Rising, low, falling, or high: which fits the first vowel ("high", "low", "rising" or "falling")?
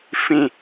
low